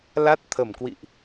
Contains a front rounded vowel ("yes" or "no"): no